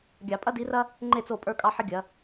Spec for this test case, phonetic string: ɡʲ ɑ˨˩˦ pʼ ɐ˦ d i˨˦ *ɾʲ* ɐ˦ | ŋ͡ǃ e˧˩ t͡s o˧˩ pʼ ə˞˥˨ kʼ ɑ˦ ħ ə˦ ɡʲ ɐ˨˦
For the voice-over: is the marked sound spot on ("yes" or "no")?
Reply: no